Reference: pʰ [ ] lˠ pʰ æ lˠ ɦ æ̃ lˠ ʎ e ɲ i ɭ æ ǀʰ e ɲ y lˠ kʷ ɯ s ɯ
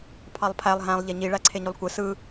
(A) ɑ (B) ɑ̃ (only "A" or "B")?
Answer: A